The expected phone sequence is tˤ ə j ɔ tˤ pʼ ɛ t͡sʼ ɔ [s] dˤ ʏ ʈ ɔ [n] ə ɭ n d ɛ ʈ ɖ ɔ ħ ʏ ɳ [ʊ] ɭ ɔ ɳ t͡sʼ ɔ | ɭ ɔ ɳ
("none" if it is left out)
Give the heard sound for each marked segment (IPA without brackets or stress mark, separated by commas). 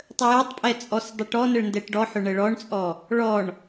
s, n, ə